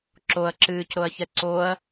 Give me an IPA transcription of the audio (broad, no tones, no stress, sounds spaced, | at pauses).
ǁ o ɐ̯ ǁ ɨː c ɾ o ɐ̯ ç ɛ ǀ o ɐ̯